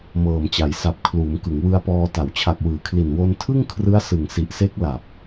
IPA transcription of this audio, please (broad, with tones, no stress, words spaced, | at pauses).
mɤː˨˩mt͡ɕa˩˦j sa˨˩p̚ kʰluː˩˦mkɯ˩˦ŋwɯ˧a̯pɔː˧ ta˩˦wt͡ɕʰa˨˩k̚wɯː˩˦kʰli˨˩n wo˧n tʰɯ˥˩ŋkʰrɯ˦˥a̯ sɯ˨˩ŋsi˨˩ʔse˦˥k̚ la˨˩p̚